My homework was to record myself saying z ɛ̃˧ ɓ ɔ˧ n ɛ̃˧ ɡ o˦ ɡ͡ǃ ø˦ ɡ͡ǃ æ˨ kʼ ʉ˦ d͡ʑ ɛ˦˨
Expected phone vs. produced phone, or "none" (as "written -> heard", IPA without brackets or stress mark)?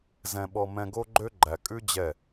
n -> m